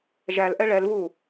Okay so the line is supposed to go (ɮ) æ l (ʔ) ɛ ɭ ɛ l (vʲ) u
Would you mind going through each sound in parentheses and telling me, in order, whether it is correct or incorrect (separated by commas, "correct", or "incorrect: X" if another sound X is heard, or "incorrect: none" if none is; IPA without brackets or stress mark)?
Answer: incorrect: ʒ, correct, incorrect: v